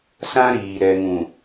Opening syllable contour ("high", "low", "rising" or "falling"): high